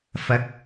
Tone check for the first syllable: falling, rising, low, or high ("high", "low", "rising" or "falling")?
rising